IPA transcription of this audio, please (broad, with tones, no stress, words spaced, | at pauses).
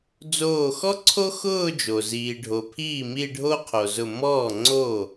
d͡zoː˧˩xɔ˥ǀʰo˥ xʊː˥˧d͡ʒo˩ ziː˩ɖʱo˩pʰiː˥˩mi˥˧ ɖʱo˥qʰo˩zʊ˧˩ mɔː˥˩ŋ͡ǀoː˥˩